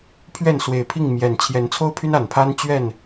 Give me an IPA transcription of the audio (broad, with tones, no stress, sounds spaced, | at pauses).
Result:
pʰ ɥ ɛ˥˨ n s w e˨˩ ɪ̯ pʰ i˥˨ ŋ m j ɛ˨˩ n t͡ɕʰ j ɛ˨˦ n t͡sʰ o˦ ʊ̯ pʰ y˦ n a˨˩ n pʰ a˦ n t͡ɕ ɥ ɛ˥˨ n